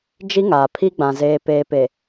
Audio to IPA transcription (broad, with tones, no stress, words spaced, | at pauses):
d͡ʒi˦ŋaː˨pʰi˦ɡ͡bã˨ zeː˨peː˨pe˨